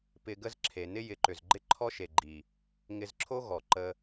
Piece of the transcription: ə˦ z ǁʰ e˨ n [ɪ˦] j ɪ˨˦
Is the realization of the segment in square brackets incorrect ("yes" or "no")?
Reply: no